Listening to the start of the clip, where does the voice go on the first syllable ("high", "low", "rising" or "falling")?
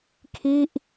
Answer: falling